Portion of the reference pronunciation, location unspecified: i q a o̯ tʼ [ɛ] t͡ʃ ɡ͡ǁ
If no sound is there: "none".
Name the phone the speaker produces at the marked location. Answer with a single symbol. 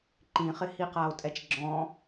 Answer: ɛ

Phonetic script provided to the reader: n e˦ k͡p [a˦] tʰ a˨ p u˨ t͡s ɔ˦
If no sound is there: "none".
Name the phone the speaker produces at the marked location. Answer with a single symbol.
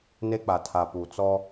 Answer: a˨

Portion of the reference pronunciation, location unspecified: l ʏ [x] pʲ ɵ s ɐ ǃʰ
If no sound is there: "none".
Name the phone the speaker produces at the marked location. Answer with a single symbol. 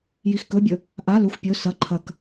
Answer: xʷ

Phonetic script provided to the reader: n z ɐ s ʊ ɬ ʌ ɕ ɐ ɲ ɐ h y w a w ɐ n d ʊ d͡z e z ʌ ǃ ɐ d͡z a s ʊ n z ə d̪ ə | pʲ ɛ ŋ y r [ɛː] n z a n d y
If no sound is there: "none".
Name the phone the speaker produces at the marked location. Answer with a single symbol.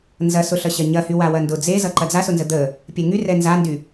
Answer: ɛ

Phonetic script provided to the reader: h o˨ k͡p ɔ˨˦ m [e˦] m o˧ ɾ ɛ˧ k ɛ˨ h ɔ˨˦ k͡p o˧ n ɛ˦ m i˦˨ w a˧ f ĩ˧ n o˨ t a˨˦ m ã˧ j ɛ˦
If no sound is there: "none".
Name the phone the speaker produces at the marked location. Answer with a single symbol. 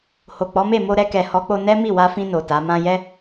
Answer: e˦˨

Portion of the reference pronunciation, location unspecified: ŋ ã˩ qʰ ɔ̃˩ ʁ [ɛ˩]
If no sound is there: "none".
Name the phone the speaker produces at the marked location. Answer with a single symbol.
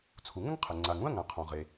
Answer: e˩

